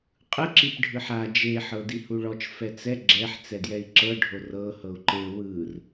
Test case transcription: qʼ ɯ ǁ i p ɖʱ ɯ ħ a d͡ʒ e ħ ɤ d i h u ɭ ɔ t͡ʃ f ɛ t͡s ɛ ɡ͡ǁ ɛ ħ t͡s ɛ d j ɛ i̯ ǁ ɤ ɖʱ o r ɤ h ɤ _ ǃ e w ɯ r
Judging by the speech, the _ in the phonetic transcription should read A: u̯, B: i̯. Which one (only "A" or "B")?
A